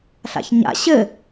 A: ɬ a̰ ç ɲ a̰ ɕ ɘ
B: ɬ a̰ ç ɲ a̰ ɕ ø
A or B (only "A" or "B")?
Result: A